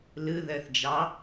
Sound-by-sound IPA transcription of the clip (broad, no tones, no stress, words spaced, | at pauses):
lɯ ðɜθd͡ʒɑ